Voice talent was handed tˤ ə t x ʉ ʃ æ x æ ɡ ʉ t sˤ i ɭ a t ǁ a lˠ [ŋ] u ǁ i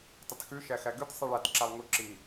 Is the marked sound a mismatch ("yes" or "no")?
no